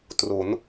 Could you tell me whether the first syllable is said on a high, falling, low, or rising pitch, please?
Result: rising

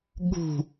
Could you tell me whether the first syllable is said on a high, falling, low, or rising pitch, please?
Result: falling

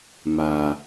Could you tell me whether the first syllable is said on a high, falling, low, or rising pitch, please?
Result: low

